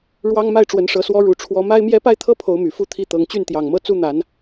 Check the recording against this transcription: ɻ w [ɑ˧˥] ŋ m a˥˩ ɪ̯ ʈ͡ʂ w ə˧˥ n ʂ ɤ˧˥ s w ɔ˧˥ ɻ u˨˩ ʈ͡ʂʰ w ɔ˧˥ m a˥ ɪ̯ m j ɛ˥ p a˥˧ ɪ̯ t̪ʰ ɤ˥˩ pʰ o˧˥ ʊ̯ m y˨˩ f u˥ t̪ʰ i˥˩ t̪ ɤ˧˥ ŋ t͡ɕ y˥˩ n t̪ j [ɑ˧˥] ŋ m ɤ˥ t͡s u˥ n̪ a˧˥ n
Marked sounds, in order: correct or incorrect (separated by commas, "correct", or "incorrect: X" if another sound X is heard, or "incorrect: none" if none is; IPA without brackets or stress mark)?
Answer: incorrect: ɑ˥, incorrect: ɑ˨˩